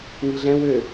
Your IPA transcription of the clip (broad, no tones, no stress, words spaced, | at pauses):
ŋiɮɛ̃ wø